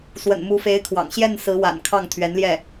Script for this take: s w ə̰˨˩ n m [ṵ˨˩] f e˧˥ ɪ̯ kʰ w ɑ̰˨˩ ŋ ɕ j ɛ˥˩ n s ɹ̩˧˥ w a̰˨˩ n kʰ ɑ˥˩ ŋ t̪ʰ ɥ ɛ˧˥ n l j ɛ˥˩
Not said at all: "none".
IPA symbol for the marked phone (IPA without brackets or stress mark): u˧˥